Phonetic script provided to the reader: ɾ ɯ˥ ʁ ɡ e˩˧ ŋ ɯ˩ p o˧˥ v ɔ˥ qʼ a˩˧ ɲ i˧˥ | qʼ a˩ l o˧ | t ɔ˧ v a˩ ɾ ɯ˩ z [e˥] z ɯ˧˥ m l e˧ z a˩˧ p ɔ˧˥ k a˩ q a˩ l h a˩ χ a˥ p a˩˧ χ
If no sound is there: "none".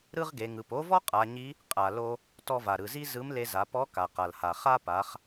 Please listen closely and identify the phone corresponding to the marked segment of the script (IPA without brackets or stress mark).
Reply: i˥